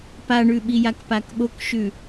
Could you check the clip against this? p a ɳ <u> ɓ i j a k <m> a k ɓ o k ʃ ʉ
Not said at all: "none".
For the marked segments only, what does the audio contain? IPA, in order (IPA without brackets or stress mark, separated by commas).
ʉ, p